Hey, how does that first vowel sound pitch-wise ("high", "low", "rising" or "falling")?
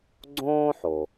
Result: high